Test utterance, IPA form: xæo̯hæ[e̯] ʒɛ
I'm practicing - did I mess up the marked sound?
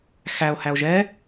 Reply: yes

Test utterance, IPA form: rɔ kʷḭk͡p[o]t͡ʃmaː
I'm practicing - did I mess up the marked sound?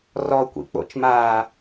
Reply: yes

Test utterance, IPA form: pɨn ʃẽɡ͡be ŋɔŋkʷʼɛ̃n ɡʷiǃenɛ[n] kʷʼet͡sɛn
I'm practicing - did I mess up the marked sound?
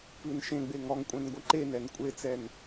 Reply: no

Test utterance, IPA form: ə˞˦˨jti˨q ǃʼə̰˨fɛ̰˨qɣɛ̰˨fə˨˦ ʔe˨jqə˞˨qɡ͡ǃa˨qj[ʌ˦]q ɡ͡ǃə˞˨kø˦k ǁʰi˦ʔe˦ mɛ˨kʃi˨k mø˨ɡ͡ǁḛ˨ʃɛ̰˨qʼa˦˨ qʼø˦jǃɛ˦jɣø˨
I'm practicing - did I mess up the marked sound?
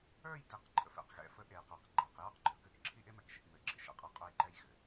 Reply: yes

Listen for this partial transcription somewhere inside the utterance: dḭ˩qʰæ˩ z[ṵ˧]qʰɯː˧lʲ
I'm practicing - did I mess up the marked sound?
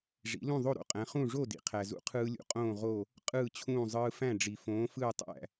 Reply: no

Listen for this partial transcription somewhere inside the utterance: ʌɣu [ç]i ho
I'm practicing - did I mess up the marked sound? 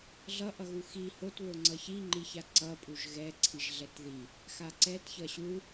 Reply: yes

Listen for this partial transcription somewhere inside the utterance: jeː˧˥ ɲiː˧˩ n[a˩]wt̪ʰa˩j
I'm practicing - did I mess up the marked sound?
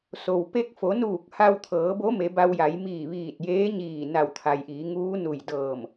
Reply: yes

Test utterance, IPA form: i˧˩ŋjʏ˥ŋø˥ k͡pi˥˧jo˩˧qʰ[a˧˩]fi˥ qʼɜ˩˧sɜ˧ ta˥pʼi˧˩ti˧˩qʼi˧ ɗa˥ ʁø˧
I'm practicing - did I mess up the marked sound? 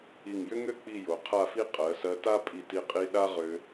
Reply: yes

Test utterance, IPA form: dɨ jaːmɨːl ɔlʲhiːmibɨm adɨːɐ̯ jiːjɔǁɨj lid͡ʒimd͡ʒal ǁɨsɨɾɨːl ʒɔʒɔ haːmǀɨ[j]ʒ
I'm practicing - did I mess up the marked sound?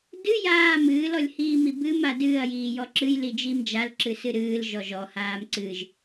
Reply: yes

